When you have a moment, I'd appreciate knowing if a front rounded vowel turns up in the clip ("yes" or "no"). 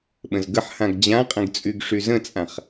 yes